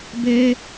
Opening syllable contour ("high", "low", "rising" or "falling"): high